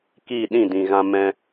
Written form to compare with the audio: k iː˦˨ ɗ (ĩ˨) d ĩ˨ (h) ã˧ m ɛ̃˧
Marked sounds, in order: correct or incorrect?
incorrect: ĩ˦˨, incorrect: ɣ

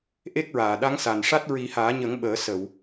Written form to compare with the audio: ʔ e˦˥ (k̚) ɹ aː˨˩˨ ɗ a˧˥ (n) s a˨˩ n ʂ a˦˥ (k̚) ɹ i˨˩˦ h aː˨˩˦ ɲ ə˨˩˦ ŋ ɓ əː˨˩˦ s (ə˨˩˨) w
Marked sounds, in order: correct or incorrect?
correct, incorrect: ŋ, incorrect: t̚, correct

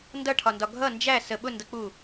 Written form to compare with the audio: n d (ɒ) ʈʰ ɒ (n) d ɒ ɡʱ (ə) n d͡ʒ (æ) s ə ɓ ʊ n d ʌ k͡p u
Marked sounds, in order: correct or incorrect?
incorrect: ʌ, correct, incorrect: ʌ, correct

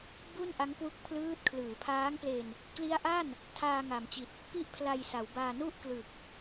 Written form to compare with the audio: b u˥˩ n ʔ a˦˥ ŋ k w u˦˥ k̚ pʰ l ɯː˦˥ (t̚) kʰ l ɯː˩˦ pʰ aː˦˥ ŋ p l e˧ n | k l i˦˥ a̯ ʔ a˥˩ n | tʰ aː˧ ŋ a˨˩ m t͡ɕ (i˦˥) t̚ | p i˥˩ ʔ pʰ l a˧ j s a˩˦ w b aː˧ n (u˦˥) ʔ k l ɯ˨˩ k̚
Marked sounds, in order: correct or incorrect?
correct, incorrect: i˨˩, incorrect: u˥˩

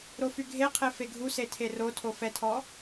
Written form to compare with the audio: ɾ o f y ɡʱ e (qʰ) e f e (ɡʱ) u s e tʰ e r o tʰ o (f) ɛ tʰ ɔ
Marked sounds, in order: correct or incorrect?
correct, correct, correct

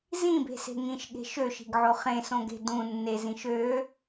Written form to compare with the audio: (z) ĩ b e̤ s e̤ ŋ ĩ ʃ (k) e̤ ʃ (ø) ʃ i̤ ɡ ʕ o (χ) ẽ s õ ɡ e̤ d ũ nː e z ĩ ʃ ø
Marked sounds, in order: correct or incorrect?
correct, incorrect: ɠ, correct, correct

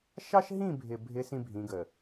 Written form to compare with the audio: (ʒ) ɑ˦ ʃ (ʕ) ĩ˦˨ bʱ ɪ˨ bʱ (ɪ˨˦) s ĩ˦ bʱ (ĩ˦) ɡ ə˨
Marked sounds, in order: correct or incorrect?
incorrect: ʃ, incorrect: ɦ, correct, incorrect: ĩ˨˦

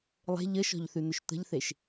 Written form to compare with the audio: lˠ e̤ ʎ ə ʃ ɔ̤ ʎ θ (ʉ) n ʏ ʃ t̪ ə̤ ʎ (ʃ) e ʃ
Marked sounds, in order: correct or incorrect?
correct, incorrect: θ

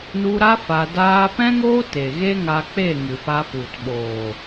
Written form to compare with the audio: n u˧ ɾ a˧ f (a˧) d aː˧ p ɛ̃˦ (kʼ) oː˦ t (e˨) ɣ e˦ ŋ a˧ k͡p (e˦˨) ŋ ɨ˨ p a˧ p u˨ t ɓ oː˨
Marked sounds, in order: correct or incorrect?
correct, incorrect: ŋ, correct, correct

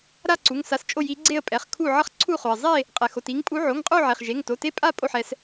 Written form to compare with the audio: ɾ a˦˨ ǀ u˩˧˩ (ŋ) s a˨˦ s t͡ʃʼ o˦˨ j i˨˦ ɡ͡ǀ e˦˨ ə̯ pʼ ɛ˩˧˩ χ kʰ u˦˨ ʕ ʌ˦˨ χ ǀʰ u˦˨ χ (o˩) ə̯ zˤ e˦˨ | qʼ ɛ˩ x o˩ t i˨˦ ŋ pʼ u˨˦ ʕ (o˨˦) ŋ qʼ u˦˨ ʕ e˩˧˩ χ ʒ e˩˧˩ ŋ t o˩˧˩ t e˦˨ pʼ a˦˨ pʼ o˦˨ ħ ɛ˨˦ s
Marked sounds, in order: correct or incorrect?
correct, correct, incorrect: o˩˧˩

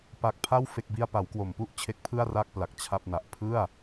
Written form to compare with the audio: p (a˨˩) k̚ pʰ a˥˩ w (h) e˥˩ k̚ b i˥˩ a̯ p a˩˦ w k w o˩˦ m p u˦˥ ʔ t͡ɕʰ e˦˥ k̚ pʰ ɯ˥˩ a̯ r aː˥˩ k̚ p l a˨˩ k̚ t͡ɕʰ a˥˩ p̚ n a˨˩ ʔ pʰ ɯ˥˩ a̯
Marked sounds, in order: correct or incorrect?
correct, incorrect: f

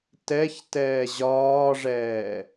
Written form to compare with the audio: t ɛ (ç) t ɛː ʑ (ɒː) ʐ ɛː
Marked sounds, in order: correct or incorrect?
correct, correct

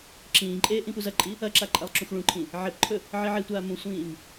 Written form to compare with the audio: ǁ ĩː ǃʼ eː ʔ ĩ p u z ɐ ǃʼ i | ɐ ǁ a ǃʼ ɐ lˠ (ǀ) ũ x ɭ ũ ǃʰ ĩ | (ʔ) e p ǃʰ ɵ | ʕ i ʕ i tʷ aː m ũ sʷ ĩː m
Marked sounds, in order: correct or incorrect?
incorrect: ǁ, incorrect: ʕ

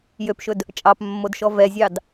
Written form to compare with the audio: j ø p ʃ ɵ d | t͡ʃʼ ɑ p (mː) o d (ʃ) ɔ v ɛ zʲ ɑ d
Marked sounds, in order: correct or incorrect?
correct, correct

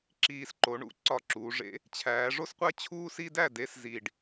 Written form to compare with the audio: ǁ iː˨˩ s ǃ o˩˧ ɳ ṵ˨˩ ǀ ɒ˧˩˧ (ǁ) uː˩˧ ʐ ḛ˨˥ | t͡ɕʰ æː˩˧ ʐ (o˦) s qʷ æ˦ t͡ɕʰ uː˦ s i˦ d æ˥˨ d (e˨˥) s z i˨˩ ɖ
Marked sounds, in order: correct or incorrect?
correct, correct, correct

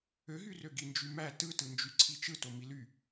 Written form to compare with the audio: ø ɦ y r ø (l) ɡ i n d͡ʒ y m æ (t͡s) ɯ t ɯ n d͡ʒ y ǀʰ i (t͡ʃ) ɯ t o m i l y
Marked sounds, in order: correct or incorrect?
incorrect: none, incorrect: t, correct

